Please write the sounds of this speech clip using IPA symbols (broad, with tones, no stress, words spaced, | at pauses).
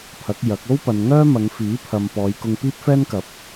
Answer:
pʰɐ˨˥k̚jɐ˨˥k̚ o˥wpɐ˨nŋœː˥ mɐ˨˧ŋfiː˨˥pʰɐ˨m pɔː˨˧jkʊ˧ŋ piː˥p̚fɛː˥nkɐ˨˥p̚